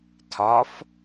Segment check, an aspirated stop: present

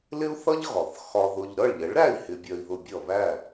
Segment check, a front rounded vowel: absent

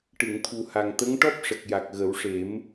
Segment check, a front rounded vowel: absent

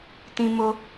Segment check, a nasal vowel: present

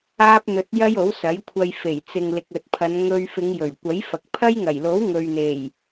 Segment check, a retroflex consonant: absent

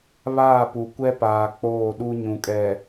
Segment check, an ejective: present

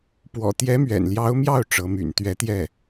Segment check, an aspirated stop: absent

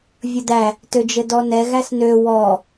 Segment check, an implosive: absent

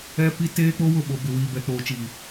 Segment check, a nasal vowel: absent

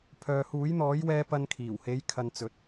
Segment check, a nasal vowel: absent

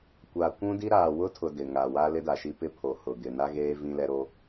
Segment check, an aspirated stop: present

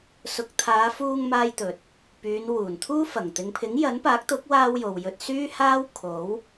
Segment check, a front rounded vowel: present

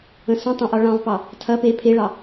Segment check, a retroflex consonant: present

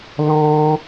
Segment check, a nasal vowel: present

